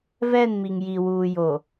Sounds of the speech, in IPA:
v ɛ˦˨ n m i˨ ŋ j i˨ w uː˨ j o˨

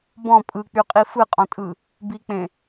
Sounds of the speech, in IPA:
b ɔ̃ pʼ ɯ k͡p y qʼ i f ɯ qʼ ɔ̃ tʼ ɯ | b i k͡p ẽ

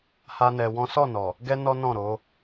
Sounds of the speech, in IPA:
h a˦ n ɛ˧ w ɔ̃˦ s ɔ˦˨ n ɔ˨ | ɡ ɛ˦ n ɔ˦ n ɔ̃˦˨ ɾ o˨˦

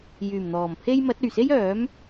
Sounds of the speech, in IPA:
j yː˨˩ m n̪ ɔː˨˩ m pʰ e˥ j m ɐ˨˥ t̚ ɵ˨˩ ɥ s e˥ j œː˨˥ m

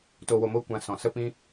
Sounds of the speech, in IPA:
t o˧ w o˧ m o˦ kʷ ã˧ s ɔ̃˨ s ə˦ p ĩ˦

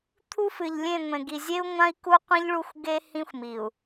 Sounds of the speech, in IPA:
t̪ʰ u˦ f ɨ˨ ʎ lʲ ẽ˦˨ ŋʷ ẽ˨ ɡ i˨ zʲ e˦ u̯ ŋʷ ã˦ i̯ k u˦ qʷ ĩ˦ ʎ ɭ u˦ xʷ ɡ e˦ h ĩ˦ xʷ m i˨ u̯

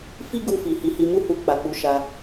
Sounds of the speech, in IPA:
f i˦ ɡ u˧ f i˨ h i˨˦ h i˧ m u˦ h u˧ k͡p a˨ k͡p u˨˦ ʃ a˧

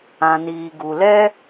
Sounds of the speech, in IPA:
ã˨ n iː˨ ɡ u˨ l ɛ˦

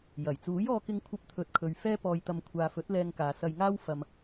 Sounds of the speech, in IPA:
j ɐ˨˩ j t͡s uː˨˥ j ɔː˧ k ɪ˧ ŋ kʷʰ ɐ˧ p̚ t̪ʰ ɵ˨˥ t̚ kʰ ɵ˨ ɥ f ɛː˥ p ɔː˧ j t̪ ɐ˧ m kʷʰ aː˨ f ɵ˨˥ t̚ l ɛː˧ ŋ k aː˨ s ɐ˧ j ŋ aː˥ w f ɐ˧ m

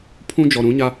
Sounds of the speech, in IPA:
pʰ ũ˦ d͡ʒ ɔ˨ ɾ ũ˨˦ ɲ a˦

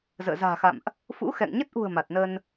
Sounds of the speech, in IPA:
z ə̰ː˧˨ z a̤ː˨˩ x a̰˧˨ m ʔ | f ṵ˧˥ x ɛ̰˧˨ ŋ ɲ ə˦˥ t̚ ʔ ṳ˨˩ ə̯ m a˨˩ t̚ n ə˧ n

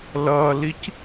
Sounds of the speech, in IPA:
l ʌː l i c

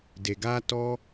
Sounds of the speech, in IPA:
d e˨ ɡ aː˧ t ɔ˦

